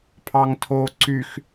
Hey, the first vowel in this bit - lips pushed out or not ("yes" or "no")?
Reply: no